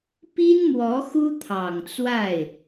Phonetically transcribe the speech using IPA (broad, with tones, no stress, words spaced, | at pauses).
pi˥nmwɔ˧˥ xu˥t̪ʰɑ˨˩ŋt͡swa˥˩ɪ̯